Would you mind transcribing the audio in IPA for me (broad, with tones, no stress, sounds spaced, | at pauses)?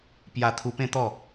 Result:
p j a˧ t̪ʰ u˧ p ẽ˥˧ t̪ ɔ˥˧